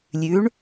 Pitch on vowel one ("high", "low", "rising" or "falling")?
rising